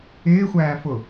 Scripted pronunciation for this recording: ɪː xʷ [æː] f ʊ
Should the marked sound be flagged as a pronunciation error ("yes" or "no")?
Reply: no